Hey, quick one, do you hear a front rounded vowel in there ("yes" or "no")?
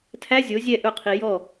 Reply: no